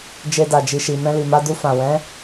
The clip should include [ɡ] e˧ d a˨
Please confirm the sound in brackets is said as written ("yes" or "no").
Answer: no